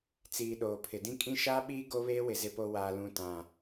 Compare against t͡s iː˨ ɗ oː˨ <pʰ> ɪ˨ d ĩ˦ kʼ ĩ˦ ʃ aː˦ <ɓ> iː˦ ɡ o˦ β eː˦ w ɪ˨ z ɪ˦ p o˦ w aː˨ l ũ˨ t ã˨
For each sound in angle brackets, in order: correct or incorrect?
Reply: correct, correct

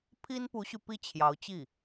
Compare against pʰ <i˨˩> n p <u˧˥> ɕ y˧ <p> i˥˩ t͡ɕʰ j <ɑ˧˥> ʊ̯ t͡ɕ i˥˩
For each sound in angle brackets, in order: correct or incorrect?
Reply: incorrect, correct, correct, correct

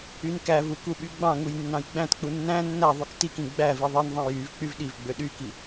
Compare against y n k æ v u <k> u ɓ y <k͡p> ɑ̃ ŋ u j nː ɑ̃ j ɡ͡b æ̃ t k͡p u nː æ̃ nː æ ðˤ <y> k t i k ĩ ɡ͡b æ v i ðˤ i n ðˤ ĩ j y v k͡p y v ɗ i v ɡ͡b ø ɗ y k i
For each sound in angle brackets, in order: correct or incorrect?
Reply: correct, incorrect, correct

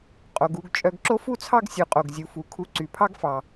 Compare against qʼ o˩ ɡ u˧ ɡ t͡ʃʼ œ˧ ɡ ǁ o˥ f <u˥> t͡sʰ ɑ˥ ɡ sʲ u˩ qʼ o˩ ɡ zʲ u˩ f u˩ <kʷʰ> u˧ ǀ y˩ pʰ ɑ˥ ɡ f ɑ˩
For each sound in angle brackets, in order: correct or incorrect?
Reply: correct, incorrect

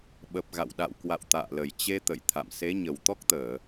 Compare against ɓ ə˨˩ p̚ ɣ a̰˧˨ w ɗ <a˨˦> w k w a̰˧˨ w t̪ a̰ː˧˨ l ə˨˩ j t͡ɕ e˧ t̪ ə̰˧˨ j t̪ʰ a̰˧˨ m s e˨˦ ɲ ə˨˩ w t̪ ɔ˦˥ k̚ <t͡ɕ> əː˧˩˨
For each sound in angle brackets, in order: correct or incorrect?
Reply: incorrect, incorrect

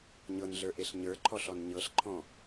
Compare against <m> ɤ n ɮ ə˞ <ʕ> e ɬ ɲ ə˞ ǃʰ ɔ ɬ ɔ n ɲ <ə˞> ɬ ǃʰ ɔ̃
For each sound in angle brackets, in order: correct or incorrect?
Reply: incorrect, incorrect, incorrect

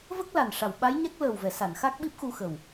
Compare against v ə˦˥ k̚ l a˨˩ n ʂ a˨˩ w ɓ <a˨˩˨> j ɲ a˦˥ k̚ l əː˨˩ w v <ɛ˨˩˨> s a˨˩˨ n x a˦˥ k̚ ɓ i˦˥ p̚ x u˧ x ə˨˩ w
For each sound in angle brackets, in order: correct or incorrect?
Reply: incorrect, correct

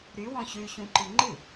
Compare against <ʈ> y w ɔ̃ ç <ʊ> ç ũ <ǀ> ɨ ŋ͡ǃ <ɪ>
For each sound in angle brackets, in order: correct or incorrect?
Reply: incorrect, incorrect, incorrect, incorrect

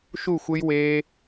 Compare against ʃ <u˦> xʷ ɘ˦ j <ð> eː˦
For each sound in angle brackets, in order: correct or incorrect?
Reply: incorrect, incorrect

